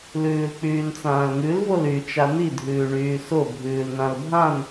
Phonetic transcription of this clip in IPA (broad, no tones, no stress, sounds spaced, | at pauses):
l ʉː l k͡p yː n t͡s ãː l ŋ ʉ l v o l y t͡ʃ a n i dʱ ʉː ɳ yː s o bʱ ʉː l n ã l bʱ ã n